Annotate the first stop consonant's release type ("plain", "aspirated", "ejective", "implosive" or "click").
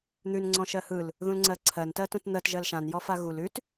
click